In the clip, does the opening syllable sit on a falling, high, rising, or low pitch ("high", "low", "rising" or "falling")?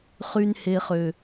high